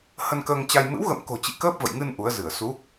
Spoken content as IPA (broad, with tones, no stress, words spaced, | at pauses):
hə˧nkəː˧ŋt͡ɕa˧j mɨ̰˧˥wɣə̰˧˨mko̤˨˩t͡ɕḭ˧˨ kəː˦˥p̚və̰˧˨jŋɨ˧n ʔu˨˦ə̯zɨ˧˩ə̯ su˨˦